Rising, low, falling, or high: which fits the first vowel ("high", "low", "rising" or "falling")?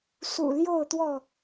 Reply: low